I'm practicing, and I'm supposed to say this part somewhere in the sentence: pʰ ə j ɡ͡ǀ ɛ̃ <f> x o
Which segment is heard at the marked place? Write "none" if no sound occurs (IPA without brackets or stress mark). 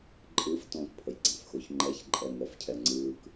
f